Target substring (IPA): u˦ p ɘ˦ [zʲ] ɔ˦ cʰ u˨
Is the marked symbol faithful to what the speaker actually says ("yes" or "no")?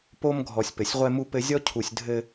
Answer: yes